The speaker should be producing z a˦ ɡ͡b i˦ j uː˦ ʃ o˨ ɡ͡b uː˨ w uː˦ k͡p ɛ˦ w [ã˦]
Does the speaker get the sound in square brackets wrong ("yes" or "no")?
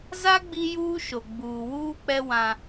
no